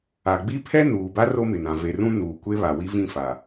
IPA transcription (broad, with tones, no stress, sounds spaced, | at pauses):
a˨ ɡ͡b i˦ pʰ ɛ˦ n uː˨ b a˦ r o˦ m ɪ˨ n ã˨ v e˨ r ũ˦ n uː˨ kʷ e˦ β a˨ w i˦ v ĩ˦˨ f a˨